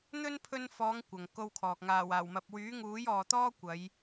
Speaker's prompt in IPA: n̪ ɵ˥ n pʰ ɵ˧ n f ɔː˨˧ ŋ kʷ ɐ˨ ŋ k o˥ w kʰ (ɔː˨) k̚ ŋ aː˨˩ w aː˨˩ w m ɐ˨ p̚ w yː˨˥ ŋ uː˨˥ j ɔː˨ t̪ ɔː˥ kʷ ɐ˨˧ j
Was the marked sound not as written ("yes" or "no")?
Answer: no